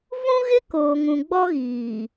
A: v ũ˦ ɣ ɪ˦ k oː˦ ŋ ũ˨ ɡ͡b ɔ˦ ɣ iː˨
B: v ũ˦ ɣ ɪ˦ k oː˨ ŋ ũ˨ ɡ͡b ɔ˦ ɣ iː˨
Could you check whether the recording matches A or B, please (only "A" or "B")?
B